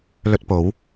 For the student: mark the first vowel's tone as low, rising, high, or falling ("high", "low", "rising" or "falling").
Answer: high